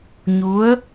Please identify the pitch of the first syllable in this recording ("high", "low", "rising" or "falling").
rising